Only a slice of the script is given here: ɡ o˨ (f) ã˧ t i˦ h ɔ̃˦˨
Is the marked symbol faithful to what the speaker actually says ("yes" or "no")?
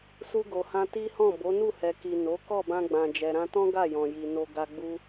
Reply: no